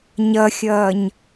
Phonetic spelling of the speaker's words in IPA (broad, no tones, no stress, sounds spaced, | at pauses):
ɲ ʌ xʲ ʌː ɲ